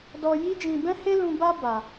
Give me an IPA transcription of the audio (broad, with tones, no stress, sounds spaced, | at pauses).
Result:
d ɔ˧ j i˦ d͡ʒ ĩ˧ b ɛ̃˦ h e˦ l ũ˧ b a˦ b a˧